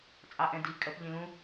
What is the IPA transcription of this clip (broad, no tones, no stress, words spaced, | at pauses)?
t͡sʼɑʔɛ̃di kʼɜpʎĩlũ